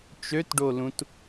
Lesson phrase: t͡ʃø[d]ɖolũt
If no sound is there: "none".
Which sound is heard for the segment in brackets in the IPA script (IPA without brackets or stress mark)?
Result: t